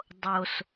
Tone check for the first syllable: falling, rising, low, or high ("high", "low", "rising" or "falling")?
low